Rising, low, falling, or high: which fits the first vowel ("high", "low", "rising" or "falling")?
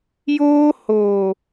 high